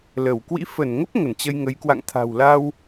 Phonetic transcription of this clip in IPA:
lə˧˩w kwḭ˧˥fə˧˩nŋə˦˥p̚ ŋə˧˩n t͡ɕə˧jŋə˨˦j kwa̰˧˨ŋ t̪ʰa̤˨˩wla˧w

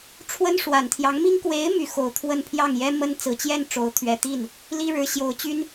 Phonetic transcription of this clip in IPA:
ʈ͡ʂʰwə˥n ʂwa˨˩nt̪ʰjɑ˧˥ŋ mi˥ŋ kwe˧˥ɪ̯ my˧˥xo˨˩ʊ̯ t̪ʰwə˥˧n pʰjɑ˥˩ŋjɛ˥ mə˥n t͡sɹ̩˨˩t͡ɕjɛ˥˩n ʈ͡ʂo˧˥ʊ̯t̪ʰɥɛ˨˩t̪i˥˩n | li˥ɻɻ̩˧˥ ɕjo˧˥ʊ̯t͡ɕy˥n

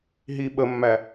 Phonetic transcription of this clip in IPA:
ɦi ɓəmːæ

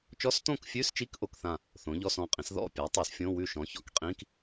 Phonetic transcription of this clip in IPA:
t͡ʃɔ˧˥˧stõ˥˩kfʲʉ˧˥˧st͡ʃi˧˥˧k ʔo˧˥˧kθã˥˩ | θõ˩˥ʎɔ˧˥˧sɔ̃˥˩qʼĩ˩˥s ðɔ̰˥˩pʲa˩˥ tˤə˞˩˥sfʲõ˧˥˧wʉ˥˩ ʃɔ̃˩˥çɔ̰˧˥˧kqʼĩ˧˥˧k

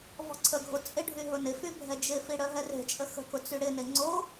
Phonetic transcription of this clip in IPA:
vɔ̤ǀʰəɡʱo t͡sʼɪɖʱy ɦʊnɪfy bʱɛd͡ʒɪfi ɽœɦɛre̤t͡ʃʼə xə̤kʊ t͡syɽɪne ŋ͡ǀo

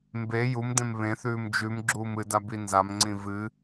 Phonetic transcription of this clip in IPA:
mbe jumdẽm βẽθʉːm d͡ʒʉm ɡ͡ǁuːmɨda binzamŋ͡ǀĩ vɨ

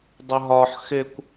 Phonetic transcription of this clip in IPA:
dˤɵɦɒħ xɪkʷ

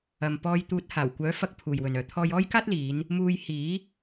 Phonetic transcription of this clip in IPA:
ɐ˧mpɔː˥j t̪uː˨˥t̚haː˨˩wkʷœː˨˥fɐ˧k̚ pʰuː˨jwɵ˨nœː˨ t̪ʰɔː˧jɔː˥jkaː˥t̚ liː˨˧n | muː˧j hiː˨˥

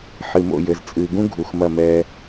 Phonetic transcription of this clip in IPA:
ħɨ˨mo̰˦˨ jɘ˨z t͡sʼɨː˨ɡũ˦ ɡʱu˨xmɐ˦˨mɛː˦

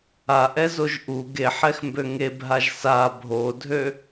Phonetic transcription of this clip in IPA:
aʔɛzoʒ ʔu ɡeħɛxmbø ŋebɦaʒ sa bʱodʱø

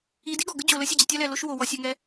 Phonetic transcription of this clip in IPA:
i˨˦ di˦ɡɔ˨ ɡə˦d͡ʑo˨ lə˦sʲʌ˨d͡ʑɛ˨ tʲa˦lɛ˨ lo˦ʃwo˨wɔ˨ sʲɛ˨ŋɛ˨˦

